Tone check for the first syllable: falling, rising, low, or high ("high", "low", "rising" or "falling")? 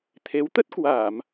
rising